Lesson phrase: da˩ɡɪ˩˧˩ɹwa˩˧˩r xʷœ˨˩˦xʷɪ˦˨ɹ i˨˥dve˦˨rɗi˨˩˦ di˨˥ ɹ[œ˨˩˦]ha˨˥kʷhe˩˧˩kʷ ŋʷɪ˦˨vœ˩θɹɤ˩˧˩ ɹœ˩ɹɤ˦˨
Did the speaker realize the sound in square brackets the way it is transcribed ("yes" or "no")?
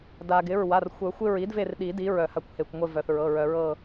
yes